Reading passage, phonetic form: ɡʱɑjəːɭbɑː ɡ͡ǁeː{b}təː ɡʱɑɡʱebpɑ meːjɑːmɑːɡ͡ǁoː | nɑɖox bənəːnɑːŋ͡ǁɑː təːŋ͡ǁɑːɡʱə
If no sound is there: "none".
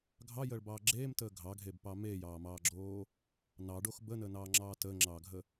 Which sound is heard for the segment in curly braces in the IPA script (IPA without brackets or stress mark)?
m